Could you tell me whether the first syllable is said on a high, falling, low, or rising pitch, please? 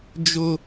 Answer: high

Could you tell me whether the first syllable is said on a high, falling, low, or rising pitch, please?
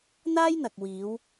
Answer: high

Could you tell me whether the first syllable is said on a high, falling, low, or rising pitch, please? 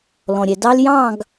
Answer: low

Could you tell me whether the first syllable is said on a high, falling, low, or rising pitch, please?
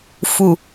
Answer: low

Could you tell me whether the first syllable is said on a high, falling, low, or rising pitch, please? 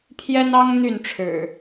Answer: high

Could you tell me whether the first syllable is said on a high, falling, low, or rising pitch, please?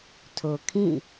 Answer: low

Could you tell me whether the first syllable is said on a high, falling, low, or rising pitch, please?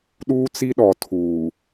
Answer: high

